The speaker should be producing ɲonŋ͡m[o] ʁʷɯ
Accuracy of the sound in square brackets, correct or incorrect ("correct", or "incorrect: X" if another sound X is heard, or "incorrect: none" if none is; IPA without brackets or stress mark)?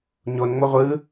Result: correct